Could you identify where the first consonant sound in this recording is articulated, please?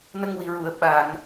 alveolar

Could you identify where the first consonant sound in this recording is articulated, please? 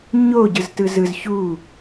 palatal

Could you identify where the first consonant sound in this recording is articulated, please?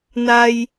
alveolar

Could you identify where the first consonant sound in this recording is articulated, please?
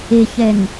palatal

